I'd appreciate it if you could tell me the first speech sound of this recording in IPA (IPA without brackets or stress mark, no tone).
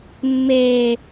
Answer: mː